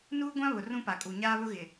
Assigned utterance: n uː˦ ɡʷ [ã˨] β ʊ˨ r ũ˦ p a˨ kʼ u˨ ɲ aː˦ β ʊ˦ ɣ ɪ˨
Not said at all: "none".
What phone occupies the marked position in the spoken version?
ã˦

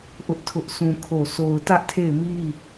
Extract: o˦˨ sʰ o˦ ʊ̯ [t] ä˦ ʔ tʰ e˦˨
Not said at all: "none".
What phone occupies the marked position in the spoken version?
t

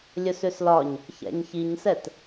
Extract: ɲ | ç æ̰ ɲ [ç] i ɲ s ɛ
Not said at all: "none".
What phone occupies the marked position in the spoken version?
ç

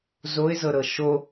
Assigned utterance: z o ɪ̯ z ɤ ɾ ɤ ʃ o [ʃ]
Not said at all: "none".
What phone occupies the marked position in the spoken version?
none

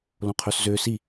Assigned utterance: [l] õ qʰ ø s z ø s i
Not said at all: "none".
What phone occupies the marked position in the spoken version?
l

